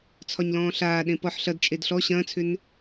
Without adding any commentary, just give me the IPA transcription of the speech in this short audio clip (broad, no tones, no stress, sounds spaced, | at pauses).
t͡sʰ ɒ ɲ l ɔ̃ː ɬ aː ɗ ẽ p ɔ ħ ɬ ɐ d t͡ʃʼ e d ɬ ɔ ɕ ɐ̃ː t͡sʰ ʏ n